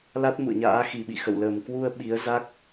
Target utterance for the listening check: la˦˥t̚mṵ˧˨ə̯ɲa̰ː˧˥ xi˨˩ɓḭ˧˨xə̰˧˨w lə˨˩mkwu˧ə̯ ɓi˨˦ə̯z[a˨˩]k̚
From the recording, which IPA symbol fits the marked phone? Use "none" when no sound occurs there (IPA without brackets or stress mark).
a˦˥